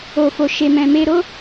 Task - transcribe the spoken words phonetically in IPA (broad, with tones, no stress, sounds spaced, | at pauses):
o˨ f o˨ ʃ e˨ m ɛ̃˨ m e˧ ɾ o˦